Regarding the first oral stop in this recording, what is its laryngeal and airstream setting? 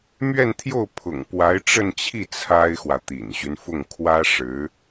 aspirated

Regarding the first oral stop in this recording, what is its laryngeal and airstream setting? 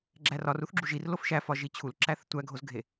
click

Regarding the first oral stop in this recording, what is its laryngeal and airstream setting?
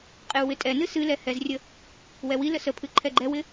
ejective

